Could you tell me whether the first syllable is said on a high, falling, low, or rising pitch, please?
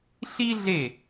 high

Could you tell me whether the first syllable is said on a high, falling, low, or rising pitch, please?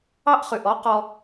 high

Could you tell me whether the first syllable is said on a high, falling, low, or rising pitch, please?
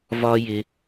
high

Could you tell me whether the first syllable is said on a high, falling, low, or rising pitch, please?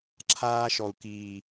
high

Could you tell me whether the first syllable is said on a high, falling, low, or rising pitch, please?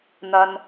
low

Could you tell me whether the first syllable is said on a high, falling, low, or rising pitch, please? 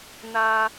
high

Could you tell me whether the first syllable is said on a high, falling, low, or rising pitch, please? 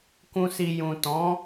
low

